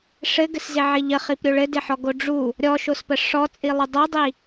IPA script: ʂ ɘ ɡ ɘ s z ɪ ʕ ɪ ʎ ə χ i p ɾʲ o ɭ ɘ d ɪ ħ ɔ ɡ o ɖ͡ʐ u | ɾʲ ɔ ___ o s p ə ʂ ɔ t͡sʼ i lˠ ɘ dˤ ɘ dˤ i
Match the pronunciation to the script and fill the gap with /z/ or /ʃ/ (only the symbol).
ʃ